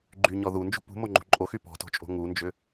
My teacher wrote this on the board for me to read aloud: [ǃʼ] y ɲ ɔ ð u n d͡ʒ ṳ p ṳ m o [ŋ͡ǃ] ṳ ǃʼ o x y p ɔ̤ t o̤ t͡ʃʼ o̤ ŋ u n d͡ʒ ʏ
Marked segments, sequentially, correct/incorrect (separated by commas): incorrect, correct